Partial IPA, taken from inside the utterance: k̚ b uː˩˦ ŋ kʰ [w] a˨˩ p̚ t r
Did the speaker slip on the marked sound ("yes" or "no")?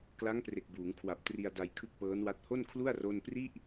no